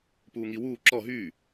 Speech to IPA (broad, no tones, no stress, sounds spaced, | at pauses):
p uː ŋ i w uː ǁ ɔ ɦ yː